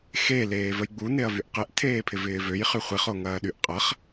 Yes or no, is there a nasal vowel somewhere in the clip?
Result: no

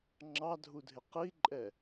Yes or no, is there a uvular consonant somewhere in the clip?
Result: yes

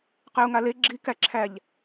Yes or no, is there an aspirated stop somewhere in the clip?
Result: yes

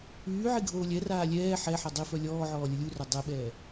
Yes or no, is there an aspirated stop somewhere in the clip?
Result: no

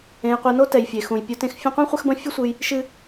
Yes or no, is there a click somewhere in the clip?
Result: no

